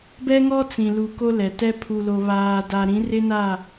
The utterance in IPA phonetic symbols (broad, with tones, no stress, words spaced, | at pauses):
bɛ˦ŋɔ˦ t͡sĩ˨ lu˨ ko˦lɛ˨tɛ˦ pʰu˨lo˨ βaː˨da˨ ɾĩ˨˦rɪ˦na˦˨